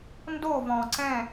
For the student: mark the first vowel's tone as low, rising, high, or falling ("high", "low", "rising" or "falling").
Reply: falling